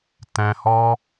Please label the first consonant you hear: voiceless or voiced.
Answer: voiceless